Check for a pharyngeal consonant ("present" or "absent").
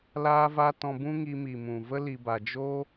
absent